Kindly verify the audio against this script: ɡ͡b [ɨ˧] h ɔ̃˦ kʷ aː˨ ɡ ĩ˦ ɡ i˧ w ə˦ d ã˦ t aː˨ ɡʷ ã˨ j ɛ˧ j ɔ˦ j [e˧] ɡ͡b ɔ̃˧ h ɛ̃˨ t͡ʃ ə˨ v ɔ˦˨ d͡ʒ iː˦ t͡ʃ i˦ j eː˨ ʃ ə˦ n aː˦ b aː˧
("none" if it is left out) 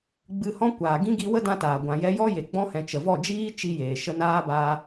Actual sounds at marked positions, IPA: ɨ˧, e˨

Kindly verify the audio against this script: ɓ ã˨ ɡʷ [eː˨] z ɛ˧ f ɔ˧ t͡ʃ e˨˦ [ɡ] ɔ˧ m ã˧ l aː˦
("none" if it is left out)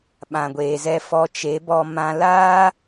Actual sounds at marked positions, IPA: eː˨, b

